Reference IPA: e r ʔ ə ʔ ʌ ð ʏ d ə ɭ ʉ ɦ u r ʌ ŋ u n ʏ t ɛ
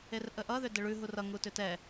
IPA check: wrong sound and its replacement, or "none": n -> t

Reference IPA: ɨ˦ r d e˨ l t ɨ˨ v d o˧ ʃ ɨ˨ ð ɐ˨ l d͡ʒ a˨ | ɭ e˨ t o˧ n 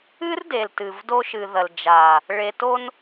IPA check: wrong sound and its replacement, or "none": none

